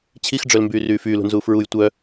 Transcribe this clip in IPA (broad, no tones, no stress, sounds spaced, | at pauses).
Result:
t͡ɕʰ i x ɖ͡ʐ œ l m b yː r yː f yː l ṳ n z uː f ɹ u j tʷ œ